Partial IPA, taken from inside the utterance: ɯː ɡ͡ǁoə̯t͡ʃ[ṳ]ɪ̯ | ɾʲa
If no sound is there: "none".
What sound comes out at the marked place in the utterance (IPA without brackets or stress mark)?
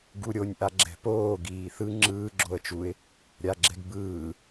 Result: u